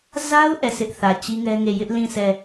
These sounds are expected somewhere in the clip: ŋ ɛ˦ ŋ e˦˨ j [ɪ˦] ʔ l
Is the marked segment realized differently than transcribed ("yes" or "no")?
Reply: no